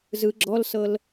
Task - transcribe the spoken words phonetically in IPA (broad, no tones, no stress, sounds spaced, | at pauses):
z ɯ ɡ͡ǁ ɔ l s ɤ l